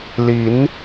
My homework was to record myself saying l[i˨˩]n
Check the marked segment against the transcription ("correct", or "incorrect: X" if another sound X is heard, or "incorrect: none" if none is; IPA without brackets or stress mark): incorrect: i˨˦